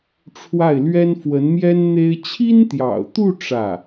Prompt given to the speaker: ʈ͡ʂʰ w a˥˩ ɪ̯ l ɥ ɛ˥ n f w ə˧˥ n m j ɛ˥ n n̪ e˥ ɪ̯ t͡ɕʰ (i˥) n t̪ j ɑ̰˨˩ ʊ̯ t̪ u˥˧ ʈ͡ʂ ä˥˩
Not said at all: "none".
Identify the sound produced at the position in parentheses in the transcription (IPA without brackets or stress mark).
i˥